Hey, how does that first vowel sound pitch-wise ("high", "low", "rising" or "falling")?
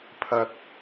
low